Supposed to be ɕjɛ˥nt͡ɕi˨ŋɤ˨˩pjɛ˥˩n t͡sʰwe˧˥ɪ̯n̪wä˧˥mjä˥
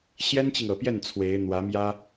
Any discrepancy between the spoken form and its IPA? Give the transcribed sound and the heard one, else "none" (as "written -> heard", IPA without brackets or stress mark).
none